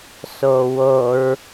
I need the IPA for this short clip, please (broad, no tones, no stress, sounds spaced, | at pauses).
s o w o ɹ